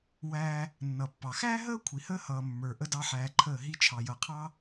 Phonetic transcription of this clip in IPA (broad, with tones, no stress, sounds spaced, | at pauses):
w æː˧ | nː ʌ˨ pː ɑ˨ x æː˦ ɦ əː˦ kʷʰ i˨ h əː˦ h ʌː˨ mː ə˞˨ ʔ ə˦ d ɑ˦ ħ æː˧ ǃʰ əː˦˨ ɦ i˧ t͡ʃʰ ɑ˨ j ʌ˨ qʰ ɑ˦